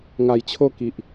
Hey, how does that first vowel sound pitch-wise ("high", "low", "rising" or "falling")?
low